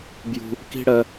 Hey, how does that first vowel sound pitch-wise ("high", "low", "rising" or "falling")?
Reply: high